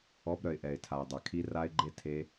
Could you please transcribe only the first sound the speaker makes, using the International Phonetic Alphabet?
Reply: ɔ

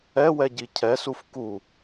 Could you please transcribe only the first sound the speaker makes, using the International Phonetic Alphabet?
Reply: ɛ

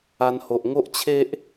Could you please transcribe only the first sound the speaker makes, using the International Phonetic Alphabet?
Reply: a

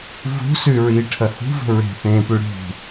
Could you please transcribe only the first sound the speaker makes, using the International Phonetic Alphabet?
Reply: v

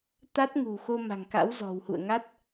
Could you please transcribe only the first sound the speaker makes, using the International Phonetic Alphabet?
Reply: t̪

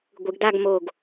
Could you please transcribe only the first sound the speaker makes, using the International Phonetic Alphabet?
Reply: ɡʷ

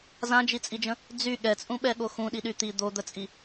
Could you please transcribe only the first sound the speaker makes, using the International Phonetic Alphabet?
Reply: z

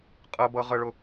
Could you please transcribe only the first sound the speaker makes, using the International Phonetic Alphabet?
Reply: qʼ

